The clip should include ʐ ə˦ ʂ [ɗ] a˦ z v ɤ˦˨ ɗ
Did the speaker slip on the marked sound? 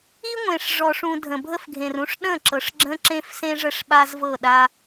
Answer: yes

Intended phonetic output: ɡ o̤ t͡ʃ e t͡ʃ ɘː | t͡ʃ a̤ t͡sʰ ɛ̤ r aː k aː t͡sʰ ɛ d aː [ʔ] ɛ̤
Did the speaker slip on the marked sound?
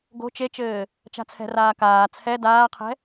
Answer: yes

